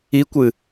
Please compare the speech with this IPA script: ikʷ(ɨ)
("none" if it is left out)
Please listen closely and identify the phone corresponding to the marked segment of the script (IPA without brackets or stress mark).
ɨ